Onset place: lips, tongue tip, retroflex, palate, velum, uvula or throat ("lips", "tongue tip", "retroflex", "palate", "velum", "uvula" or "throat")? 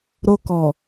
tongue tip